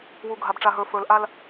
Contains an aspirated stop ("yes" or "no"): no